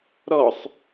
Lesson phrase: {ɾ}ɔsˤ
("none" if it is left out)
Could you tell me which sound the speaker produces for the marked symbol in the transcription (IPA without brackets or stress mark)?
ɾ